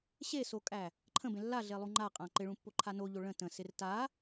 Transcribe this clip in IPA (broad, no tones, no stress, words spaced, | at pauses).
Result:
ɕesokʼæ | ǃʰə̃bẽ lːaɮelˠu ŋ͡ǃaqʼã ǃɪɭũpːoǃʰa noʎo ɭə̃ tə̃sɪr ta